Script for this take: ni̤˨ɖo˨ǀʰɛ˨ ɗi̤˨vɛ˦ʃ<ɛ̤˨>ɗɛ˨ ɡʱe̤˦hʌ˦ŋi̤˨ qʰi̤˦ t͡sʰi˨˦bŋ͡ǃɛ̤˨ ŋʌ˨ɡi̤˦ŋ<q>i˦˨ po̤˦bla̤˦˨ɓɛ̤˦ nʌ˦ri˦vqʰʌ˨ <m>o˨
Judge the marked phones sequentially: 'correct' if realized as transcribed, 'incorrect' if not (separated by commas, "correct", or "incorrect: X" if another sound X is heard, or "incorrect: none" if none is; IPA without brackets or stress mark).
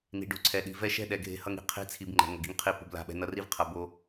incorrect: ɛ̤˦, incorrect: qʰ, incorrect: b